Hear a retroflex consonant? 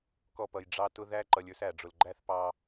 yes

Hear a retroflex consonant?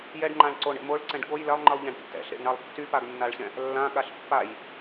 yes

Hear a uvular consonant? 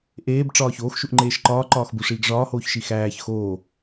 no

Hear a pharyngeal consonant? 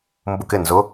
no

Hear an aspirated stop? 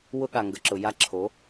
yes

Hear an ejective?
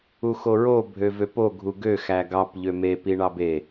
no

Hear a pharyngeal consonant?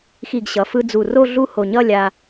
no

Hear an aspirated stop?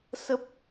no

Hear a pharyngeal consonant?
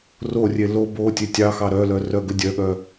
no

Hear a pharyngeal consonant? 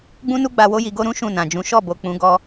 no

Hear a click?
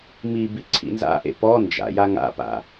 yes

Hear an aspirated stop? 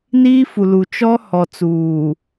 no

